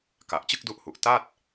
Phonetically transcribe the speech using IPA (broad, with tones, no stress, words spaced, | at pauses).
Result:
ka˨˩ʔt͡ɕɯ˥˩k̚du˦˥ʔhu˨˩ʔ ta˥˩t̚